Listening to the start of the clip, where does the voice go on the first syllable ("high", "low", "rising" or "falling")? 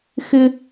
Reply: high